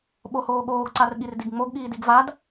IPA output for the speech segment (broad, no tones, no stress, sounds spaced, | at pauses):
ɓ o h oː ɠ oː ɡ ǀ a r ɠ i r d i ɡ ŋ͡m o ɡ ɠ iː d i ɡ v a d